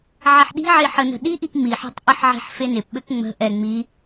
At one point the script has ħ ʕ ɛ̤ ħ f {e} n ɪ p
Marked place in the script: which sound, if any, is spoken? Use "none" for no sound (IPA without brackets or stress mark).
e